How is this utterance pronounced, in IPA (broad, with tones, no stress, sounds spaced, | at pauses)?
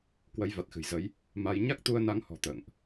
k w ə˨˦ j v a˨˩ t̚ x ɨ̤˨˩ j z ə˨˦ j | m a˧ j ɲ a˦˥ k̚ t̪ u˧ ə̯ n a˨˦ ŋ h ɔ̤˨˩ t̪ ə̰ː˧˨ ŋ ʔ